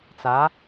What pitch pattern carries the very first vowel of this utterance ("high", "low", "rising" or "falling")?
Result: rising